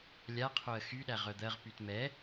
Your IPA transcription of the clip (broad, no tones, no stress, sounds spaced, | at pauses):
lʲ a qʰ o ə̯ x y ɗ æ ʁ œ d̪ ɜ ʁ p y t m ɛ